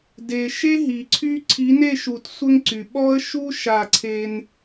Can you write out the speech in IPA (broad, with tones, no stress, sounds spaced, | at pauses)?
d e˨ ʃ e˦ ɦ i˨ ǀʰ y˦ ǀʰ i˨˦ n e˦˨ ʃ u˨ t sʷ ə˦ ŋ ǀ y˨ ɓ ɔ˦ ə̯ ʃ u˦ ʃ a˦˨ ǀʰ e˦ n